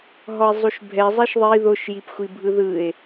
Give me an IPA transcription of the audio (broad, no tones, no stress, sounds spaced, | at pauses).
ɦ ɔ e̯ zˤ u ʃ bʱ ɛ zˤ e ʃ ðˤ i ð o ʃ j i p xʷ i bʱ ɯ ð ɯ e̯